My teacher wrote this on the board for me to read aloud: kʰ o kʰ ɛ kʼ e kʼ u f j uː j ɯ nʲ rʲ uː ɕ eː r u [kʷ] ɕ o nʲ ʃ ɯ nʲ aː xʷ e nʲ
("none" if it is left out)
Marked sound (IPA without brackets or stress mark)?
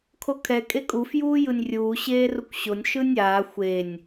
kʷ